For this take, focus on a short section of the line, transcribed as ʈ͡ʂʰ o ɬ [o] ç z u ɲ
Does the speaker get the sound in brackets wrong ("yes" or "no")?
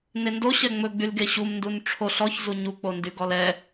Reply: yes